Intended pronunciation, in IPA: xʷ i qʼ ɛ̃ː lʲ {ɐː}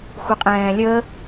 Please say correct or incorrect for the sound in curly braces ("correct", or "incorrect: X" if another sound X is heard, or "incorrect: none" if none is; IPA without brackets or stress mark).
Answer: incorrect: əː